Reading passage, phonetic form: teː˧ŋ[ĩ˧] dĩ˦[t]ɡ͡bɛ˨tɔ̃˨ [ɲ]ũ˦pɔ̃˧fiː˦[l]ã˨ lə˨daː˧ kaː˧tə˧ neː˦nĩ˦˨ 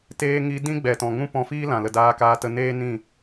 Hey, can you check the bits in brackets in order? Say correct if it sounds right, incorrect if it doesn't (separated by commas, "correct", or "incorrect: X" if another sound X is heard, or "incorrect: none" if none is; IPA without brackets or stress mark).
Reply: incorrect: i˧, incorrect: none, incorrect: ŋ, correct